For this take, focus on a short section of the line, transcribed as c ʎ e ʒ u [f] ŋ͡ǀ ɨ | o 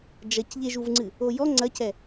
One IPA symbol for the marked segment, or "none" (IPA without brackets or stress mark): v